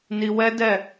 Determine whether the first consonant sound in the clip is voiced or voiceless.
voiced